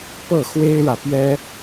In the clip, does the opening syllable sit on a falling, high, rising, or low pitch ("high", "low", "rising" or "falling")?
falling